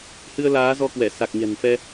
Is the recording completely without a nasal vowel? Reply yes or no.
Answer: yes